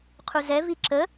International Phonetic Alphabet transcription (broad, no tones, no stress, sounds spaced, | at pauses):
qʰ u z ɛ v i ǁ ə